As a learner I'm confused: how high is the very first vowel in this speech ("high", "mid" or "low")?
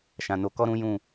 low